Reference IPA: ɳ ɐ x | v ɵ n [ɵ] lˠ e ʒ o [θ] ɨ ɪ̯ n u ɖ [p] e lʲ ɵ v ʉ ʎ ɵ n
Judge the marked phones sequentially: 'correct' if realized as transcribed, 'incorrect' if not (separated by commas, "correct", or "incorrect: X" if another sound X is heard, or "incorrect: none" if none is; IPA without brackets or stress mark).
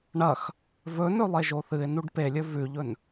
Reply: correct, correct, correct